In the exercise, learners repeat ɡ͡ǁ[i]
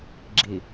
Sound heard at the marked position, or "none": i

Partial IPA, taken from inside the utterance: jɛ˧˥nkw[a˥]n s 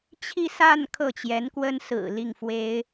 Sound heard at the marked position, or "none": ə˥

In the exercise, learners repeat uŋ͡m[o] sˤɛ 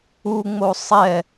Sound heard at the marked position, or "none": o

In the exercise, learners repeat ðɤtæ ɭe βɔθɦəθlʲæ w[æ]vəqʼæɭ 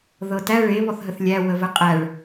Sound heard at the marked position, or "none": ə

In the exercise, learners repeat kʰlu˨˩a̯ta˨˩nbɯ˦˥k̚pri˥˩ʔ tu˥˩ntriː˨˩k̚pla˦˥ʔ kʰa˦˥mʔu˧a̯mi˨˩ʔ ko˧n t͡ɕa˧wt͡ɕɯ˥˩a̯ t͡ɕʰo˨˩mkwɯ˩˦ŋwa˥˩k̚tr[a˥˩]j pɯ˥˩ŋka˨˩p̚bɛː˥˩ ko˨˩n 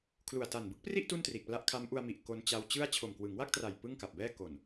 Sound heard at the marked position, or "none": a˨˩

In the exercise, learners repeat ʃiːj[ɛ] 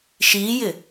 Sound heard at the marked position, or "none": ɪ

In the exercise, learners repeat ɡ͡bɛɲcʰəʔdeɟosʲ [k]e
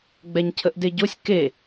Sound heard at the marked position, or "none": k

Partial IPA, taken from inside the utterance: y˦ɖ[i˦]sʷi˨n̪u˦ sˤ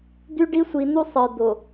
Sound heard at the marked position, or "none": i˦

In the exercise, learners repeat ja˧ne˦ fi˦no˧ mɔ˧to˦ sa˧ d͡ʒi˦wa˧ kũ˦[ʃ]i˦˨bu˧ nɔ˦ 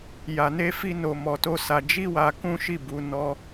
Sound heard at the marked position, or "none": ʃ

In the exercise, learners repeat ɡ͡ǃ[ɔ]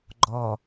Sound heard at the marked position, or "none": ɔ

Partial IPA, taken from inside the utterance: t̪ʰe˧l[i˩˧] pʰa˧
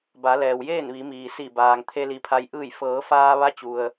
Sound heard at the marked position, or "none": i˩˧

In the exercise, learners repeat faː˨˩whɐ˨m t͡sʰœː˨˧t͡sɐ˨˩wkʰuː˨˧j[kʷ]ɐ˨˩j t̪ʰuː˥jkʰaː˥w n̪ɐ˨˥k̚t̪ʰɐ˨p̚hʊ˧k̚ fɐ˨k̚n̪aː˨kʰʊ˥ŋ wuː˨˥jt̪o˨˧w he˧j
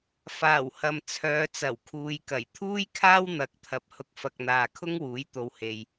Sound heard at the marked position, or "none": k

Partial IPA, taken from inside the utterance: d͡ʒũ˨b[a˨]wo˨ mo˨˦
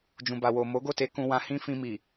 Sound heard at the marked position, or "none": a˨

